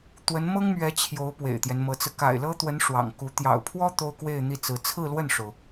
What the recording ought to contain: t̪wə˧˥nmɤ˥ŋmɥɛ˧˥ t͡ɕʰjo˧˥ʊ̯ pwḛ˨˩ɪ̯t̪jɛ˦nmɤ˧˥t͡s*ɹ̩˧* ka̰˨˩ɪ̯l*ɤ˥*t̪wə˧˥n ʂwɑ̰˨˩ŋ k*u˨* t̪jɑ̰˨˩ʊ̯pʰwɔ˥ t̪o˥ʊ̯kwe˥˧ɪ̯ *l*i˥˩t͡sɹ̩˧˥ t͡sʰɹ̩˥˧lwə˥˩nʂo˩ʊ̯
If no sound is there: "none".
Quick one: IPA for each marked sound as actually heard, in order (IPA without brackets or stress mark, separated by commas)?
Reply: ɹ̩˧, ɤ˥, u˧˥, n̪